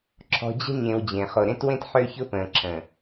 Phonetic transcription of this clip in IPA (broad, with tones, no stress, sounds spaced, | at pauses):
ǁʰ ɔ̤˨ d͡ʑ ə̤˦ ɲ ẽ˨ w d͡ʑ ẽ˨ χ o˨ ɾ ẽ˦ t w ẽ˦ t ħ ø˦ ç ʊ˦ p ə̃ː˨ ǁʰ ə̃ː˨